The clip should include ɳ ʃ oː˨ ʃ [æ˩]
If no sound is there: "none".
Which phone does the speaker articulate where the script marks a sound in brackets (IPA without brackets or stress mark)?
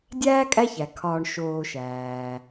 æː˩